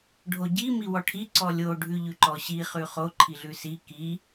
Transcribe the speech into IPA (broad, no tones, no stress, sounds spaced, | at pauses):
ɖʱ o ɟ i m i w ɔ ʈʰ i ǀ ɔ lʲ o ɖʱ ʉ ʎ ʉ ǃ ɔ ɕ i χ ʉ χ o ǃʰ i ɮ ʉ s i k i